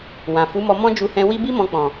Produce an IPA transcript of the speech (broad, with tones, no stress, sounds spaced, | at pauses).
w ã˨ f u˨˦ m ɔ˧ m ɔ̃˦ d͡ʒ u˧ h ɛ̃˧ w i˦ b i˦ m ɔ̃˧ k͡p ɔ̃˨